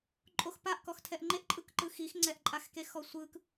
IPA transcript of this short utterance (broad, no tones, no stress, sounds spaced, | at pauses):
ǃʼ o x p a ʔ k ɔ x tʰ ɛ ʔ ŋ͡ǃ e ʔ ǃʼ ɯ k ǃ ɯ x i x ŋ͡ǀ ɛ ʔ ǃʼ a x k e x ɔ sʷ ɯ k